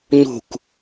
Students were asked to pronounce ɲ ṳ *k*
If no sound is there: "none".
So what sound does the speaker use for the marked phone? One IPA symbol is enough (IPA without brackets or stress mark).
k